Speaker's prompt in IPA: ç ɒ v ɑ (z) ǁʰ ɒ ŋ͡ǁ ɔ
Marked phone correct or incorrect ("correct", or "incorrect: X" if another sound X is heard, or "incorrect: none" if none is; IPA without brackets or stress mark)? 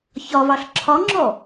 incorrect: ɬ